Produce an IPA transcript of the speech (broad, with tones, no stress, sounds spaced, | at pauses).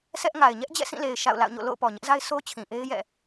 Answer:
sʰ ɛ˦ ʔ ŋ a˨ ɪ̯ ɲ ɛ˦ ʔ d͡ʑ ɛ̰˦˨ sʰ ĩ˦˨ l e˨ ɪ̯ ʃ a̰˦˨ ʊ̯ l a̰˦˨ ʊ̯ ɲ o̰˦˨ l o̰˦˨ ʊ̯ p ɔ˨ ɲ ɪ˦ ʔ z a˦ ɪ̯ s o˦ t͡ɕʰ ĩ˨ ʔ e˦ ɪ̯ j ɛ̰˦˨